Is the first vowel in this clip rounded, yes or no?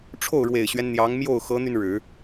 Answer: yes